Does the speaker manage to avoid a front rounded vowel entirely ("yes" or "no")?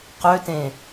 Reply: no